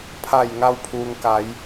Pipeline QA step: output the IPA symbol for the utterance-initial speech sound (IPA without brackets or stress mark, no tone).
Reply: pʰ